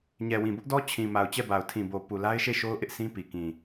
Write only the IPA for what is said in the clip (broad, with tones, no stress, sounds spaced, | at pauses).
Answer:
ɲ ɛ˨ w ĩ˨ b ʊ˦ ʔ d ɔ˦ t͡ɕʰ ĩ˨ m a˨ ʊ̯ t͡ɕ ɛ˦˨ b a˨ ʊ̯ tʰ ĩ˨ b o˨ p u˨ l a˦ ɪ̯ ʃ e˦˨ ʃ o˦ ʊ̯ ʔ ɪ˦ ʔ sʰ ĩ˦ p i˨ k ĩ˨